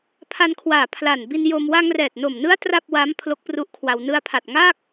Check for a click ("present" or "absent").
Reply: absent